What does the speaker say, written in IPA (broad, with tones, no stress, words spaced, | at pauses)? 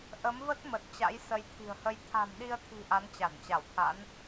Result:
ʔə˨˦mvə˦˥t̚mə˨˩t̚ t͡ɕa̰˧˥jsə˨˦jt̪ʰi̤˨˩ə̯hə˧j t̪ʰa̤˨˩mɗi˧ə̯t̪ʰi̤˨˩ ʔa˨˦nt͡ɕa˧˩nt͡ɕa˧˩wt̪ʰa̰˧˥n